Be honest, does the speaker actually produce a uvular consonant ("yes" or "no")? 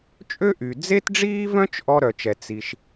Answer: no